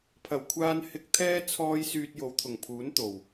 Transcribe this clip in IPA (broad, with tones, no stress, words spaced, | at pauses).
pʰɐ˨˩wkʷʰaː˧n hɪ˧k̚t̪ʰɛː˥ t͡sʰɔː˥j syː˧t̚jo˨˧wt̪ʰʊ˨˩ŋpʰuː˨˥n t̪o˨˩w